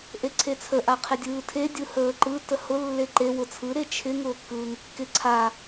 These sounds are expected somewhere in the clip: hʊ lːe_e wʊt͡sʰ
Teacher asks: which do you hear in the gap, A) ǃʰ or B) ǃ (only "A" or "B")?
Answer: B